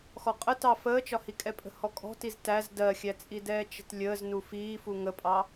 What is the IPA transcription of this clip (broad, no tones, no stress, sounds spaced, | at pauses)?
x ɔ qʼ ə t ɑ f əː t͡ʃ ɒ h i kʼ ɛ pʼ ə̤ h ɔ kʼ ɔ̤ t i z t æ z d ɜ xʲ æ t͡sʼ i d ɛː t͡ʃ ə̤ t lʲ əː z n u f iː f u ŋ ə pʼ ɑ